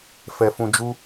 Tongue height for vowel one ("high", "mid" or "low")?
mid